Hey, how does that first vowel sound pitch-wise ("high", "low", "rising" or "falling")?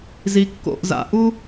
low